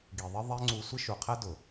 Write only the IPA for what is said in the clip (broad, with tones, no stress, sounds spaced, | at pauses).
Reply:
ɡ i˨ ðˤ ɪ˦ ðˤ ɛ˦ ŋ͡ǀ u˧ sʷ ɪ˦ ʃ u˨ qʰ ɛ˦ d ʊ˨